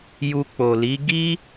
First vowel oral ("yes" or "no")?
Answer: yes